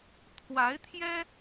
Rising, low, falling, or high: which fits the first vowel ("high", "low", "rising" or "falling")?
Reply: rising